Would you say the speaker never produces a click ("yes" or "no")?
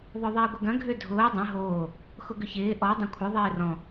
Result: yes